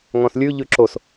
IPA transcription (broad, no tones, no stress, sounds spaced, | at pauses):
ŋ ɔ̃ s lʲ ʉ ʎ ʉ ǁ o s